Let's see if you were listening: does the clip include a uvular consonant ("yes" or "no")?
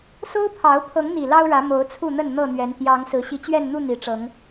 no